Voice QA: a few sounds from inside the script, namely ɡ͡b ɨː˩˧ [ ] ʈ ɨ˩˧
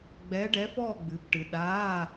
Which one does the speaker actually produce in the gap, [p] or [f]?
p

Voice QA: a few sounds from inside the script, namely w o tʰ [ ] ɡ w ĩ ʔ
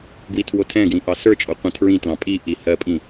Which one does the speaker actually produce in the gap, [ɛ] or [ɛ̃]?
ɛ̃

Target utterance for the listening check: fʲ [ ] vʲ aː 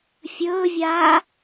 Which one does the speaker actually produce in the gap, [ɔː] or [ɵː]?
ɵː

